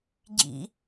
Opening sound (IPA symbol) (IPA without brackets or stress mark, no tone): ɟ